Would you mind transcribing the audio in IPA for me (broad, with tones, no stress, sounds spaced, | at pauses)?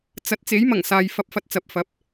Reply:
t͡s ɐ˨˥ t̚ t͡s e˨˥ j m ɐ˨˩ ŋ s aː˨ j f ɐ˧ p̚ f ɐ˧ t̚ t͡s ɐ˨ p̚ f ɐ˨˥ p̚